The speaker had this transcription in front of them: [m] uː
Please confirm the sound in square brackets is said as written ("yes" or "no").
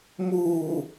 yes